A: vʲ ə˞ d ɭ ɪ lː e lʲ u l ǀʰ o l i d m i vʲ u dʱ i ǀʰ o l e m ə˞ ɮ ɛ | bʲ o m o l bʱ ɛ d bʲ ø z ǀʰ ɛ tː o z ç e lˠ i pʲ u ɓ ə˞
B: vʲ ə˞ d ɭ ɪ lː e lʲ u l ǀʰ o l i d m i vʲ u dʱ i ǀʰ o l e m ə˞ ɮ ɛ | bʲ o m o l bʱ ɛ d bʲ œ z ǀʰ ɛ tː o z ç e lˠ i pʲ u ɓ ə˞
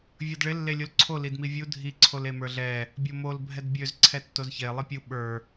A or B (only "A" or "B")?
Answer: A